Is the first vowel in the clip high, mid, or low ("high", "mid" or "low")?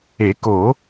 mid